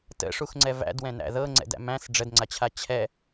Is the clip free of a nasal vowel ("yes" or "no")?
no